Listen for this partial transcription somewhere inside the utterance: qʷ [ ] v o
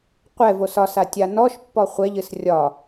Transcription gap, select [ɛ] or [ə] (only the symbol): ɛ